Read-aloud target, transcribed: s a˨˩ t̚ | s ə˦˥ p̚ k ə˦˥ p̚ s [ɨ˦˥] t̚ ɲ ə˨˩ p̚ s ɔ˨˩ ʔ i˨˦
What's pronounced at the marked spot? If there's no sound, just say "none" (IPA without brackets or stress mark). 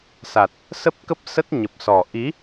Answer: ə˦˥